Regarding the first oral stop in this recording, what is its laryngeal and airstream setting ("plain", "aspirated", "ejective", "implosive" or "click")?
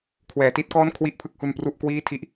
aspirated